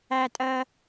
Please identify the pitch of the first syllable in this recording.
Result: high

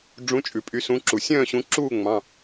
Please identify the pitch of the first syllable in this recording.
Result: rising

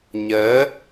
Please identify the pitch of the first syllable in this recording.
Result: rising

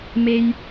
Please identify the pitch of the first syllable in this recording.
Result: high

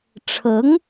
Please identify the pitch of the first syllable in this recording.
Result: rising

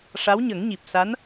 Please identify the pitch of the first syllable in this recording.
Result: rising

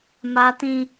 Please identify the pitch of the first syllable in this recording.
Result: high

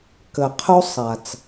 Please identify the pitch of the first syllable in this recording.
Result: low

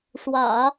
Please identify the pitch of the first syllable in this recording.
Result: low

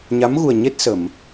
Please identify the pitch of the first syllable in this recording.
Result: rising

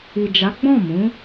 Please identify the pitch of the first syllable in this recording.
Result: low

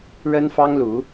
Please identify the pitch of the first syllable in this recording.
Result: high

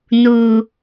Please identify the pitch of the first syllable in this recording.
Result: low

